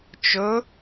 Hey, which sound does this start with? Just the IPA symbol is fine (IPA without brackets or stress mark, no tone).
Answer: t͡ʃ